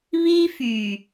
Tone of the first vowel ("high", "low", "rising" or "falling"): high